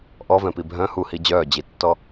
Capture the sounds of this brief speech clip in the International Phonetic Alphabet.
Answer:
ʔ ɔ v ɛ̃ p i bʱ œ̃ h u h i d͡ʑ œː d͡ʑ i tː ɔ

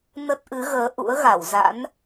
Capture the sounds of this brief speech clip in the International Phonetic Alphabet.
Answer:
n ə˦˥ t̚ ʔ ɨ˨˦ ɣ əː˨˦ ʔ ṵ˧˥ ə̯ ɣ a˧˩ w z a̰˧˥ n

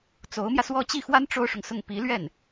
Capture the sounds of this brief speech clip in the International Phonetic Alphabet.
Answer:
t͡s o˧˥ ʊ̯ m j ä˧ s w ɔ˥˧ t͡ɕ i˥˩ x w a˥ n ʈ͡ʂ o˥ ʊ̯ ʂ ʊ˨ ŋ s ʊ˥˩ ŋ p i˧˥ l ɥ ɛ˥˩ n

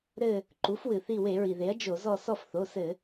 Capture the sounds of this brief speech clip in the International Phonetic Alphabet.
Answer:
ɾ ɘ˦˨ | ǃ u˩˥ f w ɨ˩ θ i˦˨ w e˧˩˧ ɹ i˩ ð e˩˥ ɐ̯ d͡ʒ o˧˩˧ z ɔ˦˨ s ɔ˦˨ f θ o˩˧˩ s ɘ˧˩˧

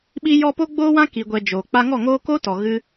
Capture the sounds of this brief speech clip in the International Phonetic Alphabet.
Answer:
ɓ i˦ j ɔ˦ p o˦ ɡ͡b oː˦ w ã˦ k i˧ ɡʷ ɛ˧ d͡ʒ oː˨ k͡p a˧ ŋ ɔ˦˨ ŋ oː˦ k o˦ t ɔ˨ ɣ ɨ˧

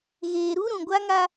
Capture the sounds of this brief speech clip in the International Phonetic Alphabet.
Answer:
ɣ eː˨ ɾ u˦ ɾ ũ˨ ɡʷ a˦ ŋ a˦

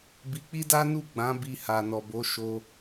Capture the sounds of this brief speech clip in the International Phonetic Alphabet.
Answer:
b i˧ k͡p i˦ d a˦ n u˦˨ ɡ͡b ã˨˦ b i˧ h a˨ n ɔ˨ b o˨˦ ʃ o˧

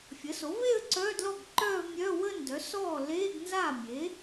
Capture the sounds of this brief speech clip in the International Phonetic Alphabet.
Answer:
fʲ ə˩˥ s o˩˥ v e˥˧ ə̯ ǀ œː˧˥˧ d l ɔ˥˩ ɡ ǃ œː˥˧ v mʲ œː˧˥˧ w əː˥˧ n d œ˩˥ s ɔː˥˩ l eː˧˥˧ ɡ n z aː˥˩ mʲ e˩˥

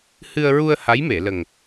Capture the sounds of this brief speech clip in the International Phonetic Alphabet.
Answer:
h ɨ˧ ə̯ ɹ u˧ ə̯ h a˧˥ j m e˨˩˨ l ə˨˩ ŋ

